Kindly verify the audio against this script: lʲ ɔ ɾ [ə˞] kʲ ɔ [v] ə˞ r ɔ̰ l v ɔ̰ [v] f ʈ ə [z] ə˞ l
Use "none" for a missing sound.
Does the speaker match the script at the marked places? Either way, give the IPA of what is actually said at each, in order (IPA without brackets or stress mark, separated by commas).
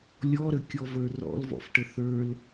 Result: ə, v, none, θ